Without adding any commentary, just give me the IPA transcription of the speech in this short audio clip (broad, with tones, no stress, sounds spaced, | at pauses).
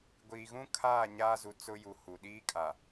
ɡʷ iː˨ ɣ ũ˦ kʰ aː˦˨ ɲ aː˦ z u˨ t͡s ʊ˦ j u˨ h u˨ ɗ iː˦ kʼ a˨